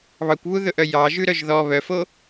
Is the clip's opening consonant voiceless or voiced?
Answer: voiced